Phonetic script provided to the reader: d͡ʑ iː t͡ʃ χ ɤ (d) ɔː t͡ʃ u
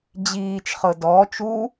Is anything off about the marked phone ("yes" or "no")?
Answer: no